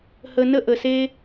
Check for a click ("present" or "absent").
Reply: absent